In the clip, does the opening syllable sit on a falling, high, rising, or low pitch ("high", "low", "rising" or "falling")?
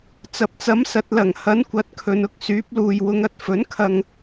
low